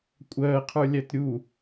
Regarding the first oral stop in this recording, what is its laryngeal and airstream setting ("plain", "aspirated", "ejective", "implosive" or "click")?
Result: ejective